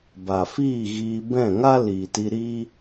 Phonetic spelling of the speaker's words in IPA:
b a˨ f iː˦˨ ɣ iː˧ b ɛ̃˦˨ ŋ a˦ l iː˨ t i˧ ɾ iː˦

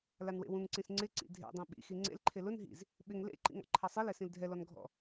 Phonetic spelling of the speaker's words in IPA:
l a n w ḛ w ũ ŋ ǀ ĩ s ŋ͡ǀ ɪ ǀ ḭ dʱ ḛ dˤ ĩ ɓ ḭ x i ŋ͡ǀ ḛ l ǃʰ e l ʊ n ɦ ḭ z | ɓ ɪ ŋ l ḛ ǃ ḭ ŋ ɔ̰ ǃʰ a sˤ i l ɛ s ĩ l dʱ ɛ l ɔ n ɡʱ ɔ̰

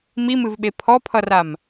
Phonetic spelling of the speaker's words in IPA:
m i m ɨ v ɓ e pʰ ɔ pʰ ʌ r a m

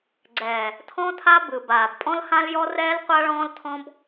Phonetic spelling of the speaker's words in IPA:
ɡ͡ǀ ɛː˨ | tʰ ɔ̃˦ tʰ a˦ b ɯ˨ b aː˨ b pʼ ɔ̃˦ l h ã˦ l j ɔ˦ r ɛː˦ l qʷ a˦ ɭ ɔ̃ː˦ l tʰ ɔ̃˦ b

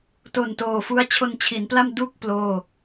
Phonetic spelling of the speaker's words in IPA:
t o˨˩ n t oː˨˩ f u˦˥ a̯ t͡ɕʰ o˧ n t͡ɕʰ i˩˦ n p l a˥˩ m d u˥˩ k̚ p l oː˥˩

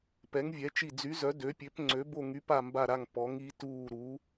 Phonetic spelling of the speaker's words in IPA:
p ɛ˨˥ ŋ vʲ ɛ˨˥ t͡ʃ i˦˨ d͡z y˨˥ z œ˨˥ d ø˨˥ pʲ ø˨˥ p ŋ͡ǀ ø˨˥ b o˦˨ ŋ y˨˥ p a˦˨ m b a˦˨ ɾ a˦˨ ŋ p ɔ˨˥ ŋ i˨˥ t uː˦˨ ɾ u˨˥

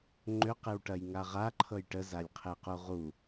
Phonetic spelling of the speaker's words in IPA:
ŋ͡ǃ ø q e w ʈ ɐ j ŋ a ʁ a ǃʰ ɤ j ʈ ə z a lʲ qʰ e q u ʁ u

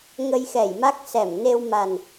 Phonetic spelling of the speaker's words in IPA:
ŋ ə˧ j x ɛ˧˩ j m a˦˥ k̚ s ɛ˧˩ m n e˧ w m a˨˩ n

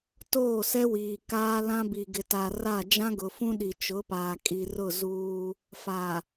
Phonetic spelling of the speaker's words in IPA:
t oː˦˨ s ɛ˦ w iː˨ k aː˦ l ã˦ b i˨ ɡ ɪ˨ t a˨ r a˦˨ d͡ʒ ã˦ ɡ ʊ˨ f ũ˦ ɗ i˨ t͡ʃ ʊ˨˦ p aː˨ kʼ i˨ r ʊ˦˨ z uː˦ | f a˨

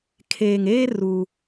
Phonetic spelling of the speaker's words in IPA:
kʰ eː˨ ŋ eː˦ r u˦

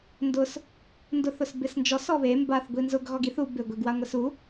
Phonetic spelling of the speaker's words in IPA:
n d ʊ s | n d ʊ θ ʊ s b ɪ s n d͡ʒ ɔ s ɔ β e m b a θ ɡʷ i n z ʊ ɡ ɣ ɔ ɡ i θ u b ɪ ɡʷ e ɡ w a ŋʷ ɛ s u

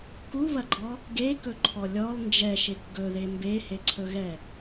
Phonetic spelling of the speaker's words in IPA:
k u β ɐ ɡ͡ǃ ɔ | ɡ e k ɵ ǃʰ ɔ lʲ ɔ l n d͡ʒ ɛ ʃ e k ɡ ɵ ð e m b e h e ǀʰ ɵ ɣ ɛ

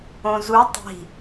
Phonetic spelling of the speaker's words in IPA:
õ z u tˤ i̤

